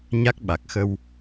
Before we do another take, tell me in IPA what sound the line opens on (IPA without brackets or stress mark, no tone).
ɲ